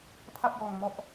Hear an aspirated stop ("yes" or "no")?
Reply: yes